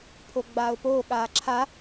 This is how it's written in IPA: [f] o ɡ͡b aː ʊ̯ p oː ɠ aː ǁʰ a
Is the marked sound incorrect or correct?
incorrect